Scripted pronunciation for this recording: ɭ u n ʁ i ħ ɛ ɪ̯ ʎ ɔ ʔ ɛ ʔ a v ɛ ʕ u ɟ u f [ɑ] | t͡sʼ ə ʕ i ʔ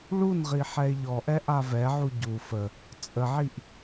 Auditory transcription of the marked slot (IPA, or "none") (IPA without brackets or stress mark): ə